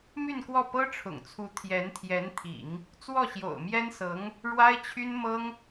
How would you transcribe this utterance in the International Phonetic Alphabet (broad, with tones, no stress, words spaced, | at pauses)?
my˥˧n kwɔ˥˩ pɤ˥ʈ͡ʂʰʊ̰˨˩ŋt͡sʰu˧˥ t̪ʰjɛ˧˥nt̪ʰjɛ˧˥nt̪ʰḭ˨˩˦ŋ | t͡swɔ˥˩ɕjo̰˨˩ʊ̯mjɛ˥nsɤ˧˥ŋ | ɻwa˥ɪ̯t͡ɕʰy˥nmɤ˥ŋ